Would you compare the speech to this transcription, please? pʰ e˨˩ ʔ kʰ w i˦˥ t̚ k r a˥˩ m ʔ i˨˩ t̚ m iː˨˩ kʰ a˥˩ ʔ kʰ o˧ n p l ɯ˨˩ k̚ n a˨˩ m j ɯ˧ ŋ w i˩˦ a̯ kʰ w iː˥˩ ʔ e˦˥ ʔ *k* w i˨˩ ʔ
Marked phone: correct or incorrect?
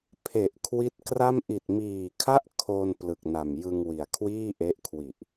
incorrect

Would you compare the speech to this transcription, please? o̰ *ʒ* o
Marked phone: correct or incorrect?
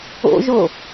correct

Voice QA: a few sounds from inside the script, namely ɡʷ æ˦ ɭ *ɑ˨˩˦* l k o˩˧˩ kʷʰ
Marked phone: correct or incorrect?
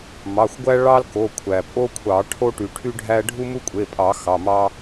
incorrect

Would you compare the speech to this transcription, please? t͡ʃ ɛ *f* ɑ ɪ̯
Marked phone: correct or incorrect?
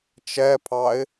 incorrect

